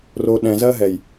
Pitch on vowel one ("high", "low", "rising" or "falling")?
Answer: low